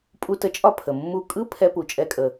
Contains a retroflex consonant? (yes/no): no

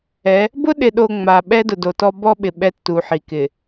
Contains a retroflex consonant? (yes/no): no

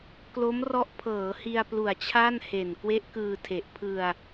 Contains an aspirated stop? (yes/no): yes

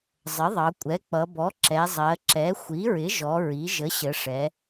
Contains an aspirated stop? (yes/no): no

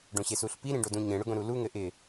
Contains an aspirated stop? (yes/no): no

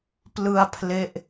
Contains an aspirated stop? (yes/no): yes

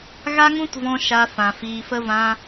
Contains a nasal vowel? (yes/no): yes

